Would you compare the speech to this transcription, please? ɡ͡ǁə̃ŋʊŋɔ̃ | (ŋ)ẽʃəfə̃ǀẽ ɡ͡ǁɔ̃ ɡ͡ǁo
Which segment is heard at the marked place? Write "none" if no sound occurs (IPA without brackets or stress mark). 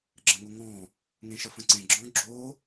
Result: ŋ